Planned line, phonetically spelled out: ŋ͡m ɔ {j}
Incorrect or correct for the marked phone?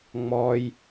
correct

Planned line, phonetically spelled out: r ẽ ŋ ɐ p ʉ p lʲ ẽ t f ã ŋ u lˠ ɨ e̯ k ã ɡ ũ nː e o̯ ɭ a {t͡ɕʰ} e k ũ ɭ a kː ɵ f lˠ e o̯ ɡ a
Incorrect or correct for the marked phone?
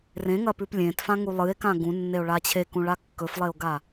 correct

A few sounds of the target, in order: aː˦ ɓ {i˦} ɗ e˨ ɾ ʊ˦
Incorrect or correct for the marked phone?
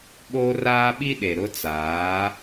correct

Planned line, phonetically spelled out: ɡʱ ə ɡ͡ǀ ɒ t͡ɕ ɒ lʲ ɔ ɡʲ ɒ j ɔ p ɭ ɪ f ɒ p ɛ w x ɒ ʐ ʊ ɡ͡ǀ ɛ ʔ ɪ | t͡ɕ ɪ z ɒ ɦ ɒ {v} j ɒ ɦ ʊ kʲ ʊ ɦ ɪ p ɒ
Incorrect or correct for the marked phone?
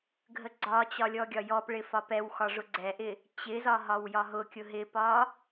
incorrect: w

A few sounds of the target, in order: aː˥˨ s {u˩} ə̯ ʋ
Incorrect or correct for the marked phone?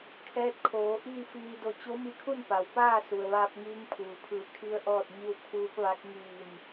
correct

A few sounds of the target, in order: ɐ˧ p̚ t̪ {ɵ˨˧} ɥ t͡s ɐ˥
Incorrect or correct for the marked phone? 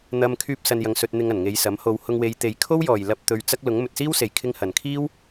correct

